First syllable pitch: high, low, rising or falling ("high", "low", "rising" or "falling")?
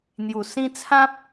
low